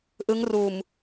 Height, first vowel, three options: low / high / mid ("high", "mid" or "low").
high